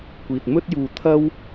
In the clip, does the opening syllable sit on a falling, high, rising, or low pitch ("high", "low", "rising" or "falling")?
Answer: low